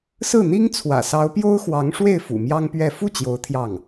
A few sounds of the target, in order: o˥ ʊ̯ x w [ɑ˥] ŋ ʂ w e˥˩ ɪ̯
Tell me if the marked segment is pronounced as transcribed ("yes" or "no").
no